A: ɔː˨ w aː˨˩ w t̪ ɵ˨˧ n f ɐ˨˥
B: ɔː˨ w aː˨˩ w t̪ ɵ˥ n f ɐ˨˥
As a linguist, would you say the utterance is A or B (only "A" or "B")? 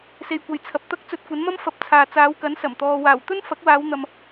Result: B